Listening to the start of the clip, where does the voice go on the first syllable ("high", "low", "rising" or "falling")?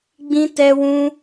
high